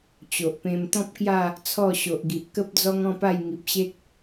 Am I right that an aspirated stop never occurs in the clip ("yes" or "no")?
no